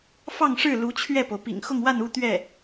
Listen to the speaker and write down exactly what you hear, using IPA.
f ɑ˥˧ ŋ ʂ ɻ̩˥˩ l u˧˥ t͡ɕʰ ɥ ɛ˥˩ p o˩ ʊ̯ p ḭ˨˩ ŋ x ʊ˥˧ ŋ w a˥˧ n u˥˧ t̪ ɥ ɛ˥˩

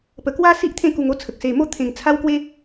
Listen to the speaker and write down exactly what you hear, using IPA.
p ə˨˩ k w a˦ s i˦ ʔ t̪ʰ ẽ˦ k u˧ ŋ o˥˧ t͡sʰ ə˨ k̚ s e˨˩ m o˦ t̪ʰ ẽ˨˩ ŋ t͡sʰ a˦ w k w e˦

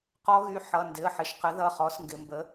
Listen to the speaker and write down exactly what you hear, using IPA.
q ɔ˧˥ ɣ y˩˧˩ ħ ʌ˩˧˩ n d ɪ˩˧˩ ə̯ ħ ɪ˩˧ ʃ q ə˩˥ ð ʌ˩˧˩ χ ɔ˩˥ s ŋ ɡ ɪ˩˧ m b ə˩˥

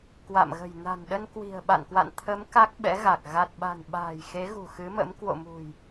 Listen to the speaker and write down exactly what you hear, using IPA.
k w a̰˧˨ m ɣ ə̤˨˩ j n a̤˨˩ n ɗ ə˧ n k w i̤˨˩ ə̯ ɓ a̰˧˨ n k w a̰˧˨ n t̪ʰ ə˨˦ m k a˦˥ k̚ ɓ ɛ̰˧˥ ɣ a˨˩ k̚ ɣ a˨˩ t̚ ɓ a̤˨˩ n ɓ a̤ː˨˩ j x e˨˦ ɣ ṳ˨˩ x ɨ˨˦ m ə̰˧˥ m k w o̰˧˨ m ṳ˨˩ j

